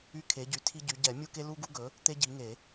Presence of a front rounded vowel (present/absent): present